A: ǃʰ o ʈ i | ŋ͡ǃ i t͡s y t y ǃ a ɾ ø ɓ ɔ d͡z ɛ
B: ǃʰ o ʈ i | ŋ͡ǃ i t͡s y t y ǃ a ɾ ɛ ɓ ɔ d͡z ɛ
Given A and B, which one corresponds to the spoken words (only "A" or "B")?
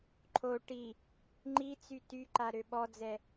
A